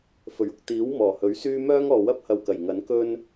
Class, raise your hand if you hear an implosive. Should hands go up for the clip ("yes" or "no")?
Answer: no